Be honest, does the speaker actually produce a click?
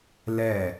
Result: no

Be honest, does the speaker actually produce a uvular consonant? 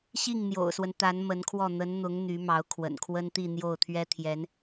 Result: no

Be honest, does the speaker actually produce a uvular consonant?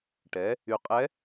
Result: yes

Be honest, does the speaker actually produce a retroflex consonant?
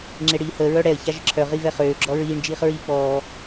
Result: yes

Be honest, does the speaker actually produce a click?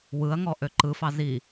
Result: yes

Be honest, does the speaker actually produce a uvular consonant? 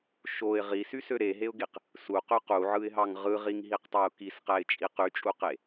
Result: yes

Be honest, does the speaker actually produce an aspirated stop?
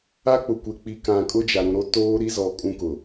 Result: no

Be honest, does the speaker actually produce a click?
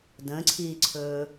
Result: yes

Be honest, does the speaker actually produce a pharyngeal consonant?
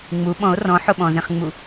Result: yes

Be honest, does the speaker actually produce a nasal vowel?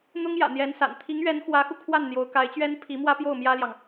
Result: no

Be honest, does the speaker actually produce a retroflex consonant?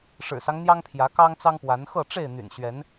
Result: yes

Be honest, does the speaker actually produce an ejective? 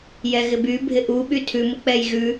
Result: no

